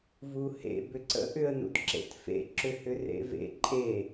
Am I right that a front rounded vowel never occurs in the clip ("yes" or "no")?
no